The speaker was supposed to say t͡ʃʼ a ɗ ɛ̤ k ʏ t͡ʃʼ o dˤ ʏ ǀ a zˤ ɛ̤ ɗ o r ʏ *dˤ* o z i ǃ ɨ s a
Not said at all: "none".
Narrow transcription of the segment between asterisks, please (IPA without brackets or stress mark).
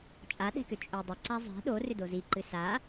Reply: d